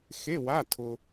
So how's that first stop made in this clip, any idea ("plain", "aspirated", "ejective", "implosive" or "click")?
aspirated